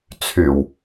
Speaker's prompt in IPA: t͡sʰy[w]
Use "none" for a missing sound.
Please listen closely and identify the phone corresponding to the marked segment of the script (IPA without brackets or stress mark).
w